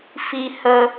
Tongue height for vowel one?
high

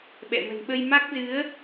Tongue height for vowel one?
mid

